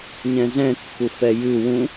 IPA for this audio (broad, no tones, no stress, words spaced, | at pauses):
ɲɛ̃zɛ̃ kːufɛjʉ wũ